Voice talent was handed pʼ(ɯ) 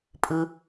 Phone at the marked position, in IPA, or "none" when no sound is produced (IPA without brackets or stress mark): ɯ